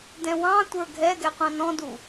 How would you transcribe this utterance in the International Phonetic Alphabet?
d ɛ̃ w ɑ̃ tʷ ə˞ ɡʱ ɛ ɡ ɛ qʷ ɑ̃ n ɔ̃ d u

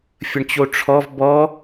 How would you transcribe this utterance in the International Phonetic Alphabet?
fʲ ə ɳ t͡ɕ o ʈ͡ʂʰ ɔ v b ɔ

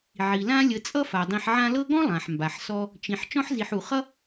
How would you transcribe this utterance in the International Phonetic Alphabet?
ʕ i˩ l ã˦ lʲ ə˨ t͡sʼ ʌ˥ f a˩ dˤ ĩ˨ ħ ʕ ã˦ l ɤ˥ ɡ ɔ̃˥ lˠ ã˩ ħ m b a˩ ħ s ɔ˦ | t͡ʃ ĩ˨ ħ t͡ʃ ɔ̃˥ ħ z i˨ ħ u˩ χ ʌ˥

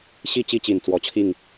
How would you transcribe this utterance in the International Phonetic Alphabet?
ɕ i˥˨ t͡ɕ i˦ t͡ɕ i˨˩ n t͡s w ɔ˨˦ t͡ɕʰ i˥˨ ŋ

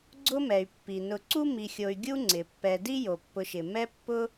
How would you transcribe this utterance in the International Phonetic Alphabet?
ɡ͡ǀ ʊ˦ m ɛ˩ y̯ pː i˩ n ʊ˨ ǀ u˥ m i˨ xʲ o˨ y̯ ɡʲ u˦ ŋ͡ǀ ɪ˩ pː ɛ˨ d i˥ j o˩ pː ʊ˨ ʃ ɪ˩ m ɛ˦ pː ʊ˦

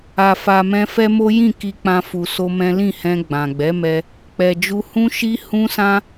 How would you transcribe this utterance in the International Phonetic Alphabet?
a˧ f a˧ m ɛ̃˦ f ɛ˦ m o˦ j ĩ˦˨ k i˧ k͡p ã˧ f u˧ s o˦ m ɛ̃˦ l ĩ˦˨ h ɛ̃˧ ɡ͡b ã˨ ɡ͡b ɛ˨˦ m ɛ˧ | k͡p ɛ˨ d͡ʒ u˧ h ũ˦ ʃ i˦ h ũ˦ s ã˦

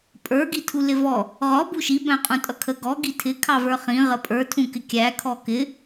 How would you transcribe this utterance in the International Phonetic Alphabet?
pʼ ə˞ ɡ i tʰ u l ɪ v ɔ | ʁ ɔ b u ʃ i b æ̃ qʼ ũ tʼ ʌ kʰ ə ɡ ɔ ɡ i tʰ ɪ kʰ ɑ v ə˞ χ ĩ ʁ ə pʼ ə˞ tʰ ũ k ɪ kʲ æ kʰ ɔ k ɪ

